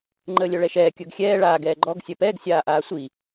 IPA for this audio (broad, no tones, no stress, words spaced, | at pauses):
ŋ͡ǃəːlʲœɭɛʃɛː kʲœɡxʲɛː ɭaːɡ ɛːɡ͡ǃɔɡ sʲœpɛːɡ sʲaːʔaːsʷi